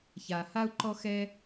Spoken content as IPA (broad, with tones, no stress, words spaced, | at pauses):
ça˨ha˦u̯ ǃɔ˥xɛ˥